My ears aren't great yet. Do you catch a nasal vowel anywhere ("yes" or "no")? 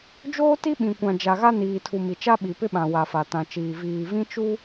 yes